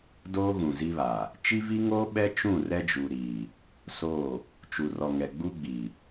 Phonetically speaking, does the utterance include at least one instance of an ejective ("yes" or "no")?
no